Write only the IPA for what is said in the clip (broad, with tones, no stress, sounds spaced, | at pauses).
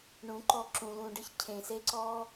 ɳ ũ˨˦ ǃ ɔ˧ ǁ ũ˨ l ũ˨ ɖ ɨ˦ ç cʰ ẽ˨ s e˦ ǀ ɔ˦